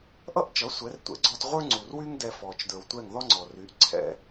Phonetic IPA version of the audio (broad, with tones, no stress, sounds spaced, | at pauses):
ʔ ʌ˥ ʔ t͡ʃ ʌ˩˥ sʷ ɛ˩˥ r tʷ ɛ̰˩˥ ɡ͡ǀ ɔ˧ t ʁʷ ə˞˥ ŋ͡ǀ u˩ r w y˥ ŋ d ɛ˧ f ɔ˩ t͡ʃ d ə˞˩ w tʷ ɛ˥˩ ŋ ð ɔ˥ ŋ͡ǀ ɔ˩ r y˩˥ ʔ ǀʰ ɛ̰˥